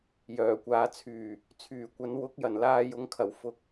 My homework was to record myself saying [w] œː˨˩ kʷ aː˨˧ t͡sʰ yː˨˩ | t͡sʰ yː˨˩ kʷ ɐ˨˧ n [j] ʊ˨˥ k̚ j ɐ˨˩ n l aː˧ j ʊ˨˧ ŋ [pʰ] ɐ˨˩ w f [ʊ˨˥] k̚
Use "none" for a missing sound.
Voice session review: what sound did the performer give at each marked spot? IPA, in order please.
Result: j, w, kʰ, ʊ˧

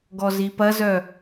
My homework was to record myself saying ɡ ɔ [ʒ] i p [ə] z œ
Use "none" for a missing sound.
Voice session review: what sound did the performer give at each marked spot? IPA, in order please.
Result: z, ɐ

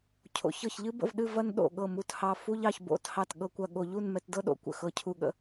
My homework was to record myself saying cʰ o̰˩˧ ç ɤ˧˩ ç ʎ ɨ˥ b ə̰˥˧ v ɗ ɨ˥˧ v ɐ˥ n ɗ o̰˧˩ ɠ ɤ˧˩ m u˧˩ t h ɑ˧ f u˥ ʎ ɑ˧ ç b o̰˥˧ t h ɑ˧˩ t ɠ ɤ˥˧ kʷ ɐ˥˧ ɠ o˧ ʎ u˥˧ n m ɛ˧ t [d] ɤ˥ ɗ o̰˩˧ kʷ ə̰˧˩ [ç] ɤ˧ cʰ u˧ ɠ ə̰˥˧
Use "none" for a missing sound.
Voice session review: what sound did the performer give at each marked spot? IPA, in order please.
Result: d, x

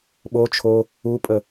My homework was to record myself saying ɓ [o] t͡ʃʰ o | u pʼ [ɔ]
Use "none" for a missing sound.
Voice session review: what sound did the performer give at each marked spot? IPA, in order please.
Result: o, ə

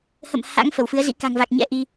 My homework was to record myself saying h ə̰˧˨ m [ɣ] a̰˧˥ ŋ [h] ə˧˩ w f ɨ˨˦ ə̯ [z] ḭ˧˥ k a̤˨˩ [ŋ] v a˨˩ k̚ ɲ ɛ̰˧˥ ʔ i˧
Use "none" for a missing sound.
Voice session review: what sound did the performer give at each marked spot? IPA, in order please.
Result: h, f, z, ŋ

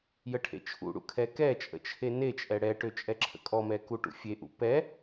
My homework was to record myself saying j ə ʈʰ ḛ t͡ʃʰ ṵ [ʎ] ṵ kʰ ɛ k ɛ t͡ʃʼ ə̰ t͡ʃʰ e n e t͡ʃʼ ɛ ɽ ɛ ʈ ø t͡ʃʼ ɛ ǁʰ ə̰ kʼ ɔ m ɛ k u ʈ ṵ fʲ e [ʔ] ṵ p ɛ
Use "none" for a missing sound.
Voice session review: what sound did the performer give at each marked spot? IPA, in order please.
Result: ɽ, ʔ

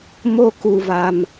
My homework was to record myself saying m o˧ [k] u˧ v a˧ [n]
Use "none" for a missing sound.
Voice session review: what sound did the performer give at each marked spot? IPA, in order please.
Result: k, m

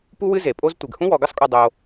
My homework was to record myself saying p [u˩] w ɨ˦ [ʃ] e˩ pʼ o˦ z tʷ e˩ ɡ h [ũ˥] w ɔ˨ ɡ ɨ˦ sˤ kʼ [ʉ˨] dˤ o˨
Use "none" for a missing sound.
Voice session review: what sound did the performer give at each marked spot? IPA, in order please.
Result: u˦, z, ũ˥, u˨

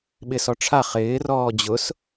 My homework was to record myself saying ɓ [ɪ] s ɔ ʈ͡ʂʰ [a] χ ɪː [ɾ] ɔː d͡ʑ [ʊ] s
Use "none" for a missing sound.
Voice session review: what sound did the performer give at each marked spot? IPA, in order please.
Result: ɪ, a, r, ʊ

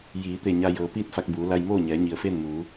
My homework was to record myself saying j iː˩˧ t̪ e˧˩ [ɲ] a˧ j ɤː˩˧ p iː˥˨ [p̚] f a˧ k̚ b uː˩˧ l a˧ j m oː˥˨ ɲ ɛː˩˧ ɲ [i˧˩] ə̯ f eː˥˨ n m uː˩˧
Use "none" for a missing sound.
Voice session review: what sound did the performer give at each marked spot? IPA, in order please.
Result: ɲ, t̚, i˩

